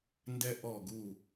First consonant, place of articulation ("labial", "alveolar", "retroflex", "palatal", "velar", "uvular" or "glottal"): alveolar